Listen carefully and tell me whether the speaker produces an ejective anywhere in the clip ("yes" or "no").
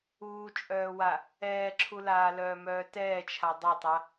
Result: yes